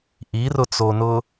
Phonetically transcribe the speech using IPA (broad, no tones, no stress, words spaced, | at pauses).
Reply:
ʔirʊt͡sonʊ